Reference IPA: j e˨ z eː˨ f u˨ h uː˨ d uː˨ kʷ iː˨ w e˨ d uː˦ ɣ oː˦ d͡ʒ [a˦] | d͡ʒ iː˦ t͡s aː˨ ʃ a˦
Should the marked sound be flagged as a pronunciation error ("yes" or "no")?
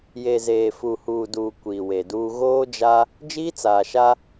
no